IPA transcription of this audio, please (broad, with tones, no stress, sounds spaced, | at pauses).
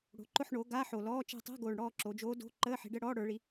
ɽ o̤˩˧ ǃ ʊ˦˨ ħ ɳ o˩˧ ɡ a˧˥˧ ħ o˨˩ l ɔː˧˥˧ t͡ʃ ɛ̤˦˨ tˤ ɛ̤˧˥˧ ɡ oː˨˩ ɳ ɽ ɔː˦˨ ǁ o˩˧ d͡ʒ oː˧˥ d o̤˧˥˧ ǃ əː˧˥˧ ħ i̤˩˧ ɖ ə˧˥˧ ɽ ɔː˧˥˧ ɽ ə˞˩˧ ɭ i˩˧